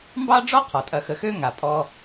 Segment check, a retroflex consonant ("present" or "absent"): present